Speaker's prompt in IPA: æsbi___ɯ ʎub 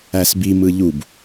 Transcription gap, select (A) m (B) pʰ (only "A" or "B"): A